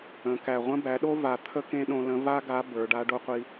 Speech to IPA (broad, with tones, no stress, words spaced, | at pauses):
ə̃˩˧ kæ˩ʁʷə̃˧˥bæ˩˧ɗo˥ va˧ t̪ʰə˥kẽ˥ɗõ˧lə̃˧˥ va˥ɡa˧˥ bə˞˩˧ɖa˧˥ ɖo˧˥qʷi˧